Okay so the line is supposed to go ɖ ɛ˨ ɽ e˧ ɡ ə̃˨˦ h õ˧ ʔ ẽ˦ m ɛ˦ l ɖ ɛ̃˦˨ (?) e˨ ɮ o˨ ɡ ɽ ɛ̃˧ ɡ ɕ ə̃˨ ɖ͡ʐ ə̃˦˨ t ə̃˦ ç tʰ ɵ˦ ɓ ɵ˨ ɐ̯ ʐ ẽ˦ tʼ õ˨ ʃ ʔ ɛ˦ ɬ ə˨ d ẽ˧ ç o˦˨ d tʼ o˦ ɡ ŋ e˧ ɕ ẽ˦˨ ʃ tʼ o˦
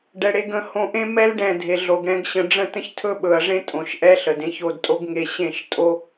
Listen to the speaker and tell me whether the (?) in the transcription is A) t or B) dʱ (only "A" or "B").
B